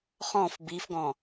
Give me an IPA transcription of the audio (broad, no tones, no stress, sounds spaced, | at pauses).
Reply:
χ ɔ̃ f b i f ɡ ɔ̃